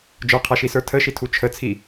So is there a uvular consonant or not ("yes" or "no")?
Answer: yes